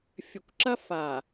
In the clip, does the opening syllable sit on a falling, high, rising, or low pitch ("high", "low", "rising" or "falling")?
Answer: low